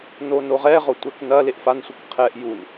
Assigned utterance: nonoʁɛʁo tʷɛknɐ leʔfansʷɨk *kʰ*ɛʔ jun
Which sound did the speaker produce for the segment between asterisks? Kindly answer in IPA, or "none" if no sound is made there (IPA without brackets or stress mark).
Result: qʰ